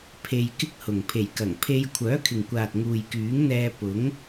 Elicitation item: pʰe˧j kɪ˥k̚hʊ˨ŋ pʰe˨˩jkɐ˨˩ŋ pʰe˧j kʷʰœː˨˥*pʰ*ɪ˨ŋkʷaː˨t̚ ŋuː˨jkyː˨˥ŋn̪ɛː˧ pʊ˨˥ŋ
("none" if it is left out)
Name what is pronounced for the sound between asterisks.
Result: kʰ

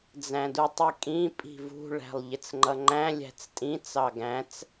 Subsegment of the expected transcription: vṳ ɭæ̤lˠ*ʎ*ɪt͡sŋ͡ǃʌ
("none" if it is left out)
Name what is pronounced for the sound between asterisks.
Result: ʎ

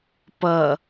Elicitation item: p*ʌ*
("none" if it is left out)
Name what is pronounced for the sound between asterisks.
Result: ʌ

